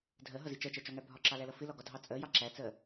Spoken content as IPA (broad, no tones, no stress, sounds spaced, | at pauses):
dʱ ɜ ɦ ʌ z i t͡ʃ ɜ t͡ʃ ɜ t͡ʃ ɒ ŋ æ bʱ ɒ ǁ ɑ l æ l ʌ f ɪ l ɒ ɡ ɒ dʱ ɑ t͡sʼ ɜ j ɑ ǁ æ t͡s ɜ